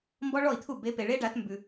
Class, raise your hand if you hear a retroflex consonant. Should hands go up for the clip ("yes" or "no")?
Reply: yes